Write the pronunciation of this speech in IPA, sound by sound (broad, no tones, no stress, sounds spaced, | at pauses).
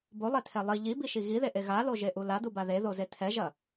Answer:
b o lˠ e tʰ ɛ lˠ i ʎ i b i ʃ i ɣ i ð e ʔ e ɣ a l o ʒ e ʔ u l a d u b a ð e ð o z e tʰ ɛ ʒ ɐ